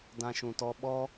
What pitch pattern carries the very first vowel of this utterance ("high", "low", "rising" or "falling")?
high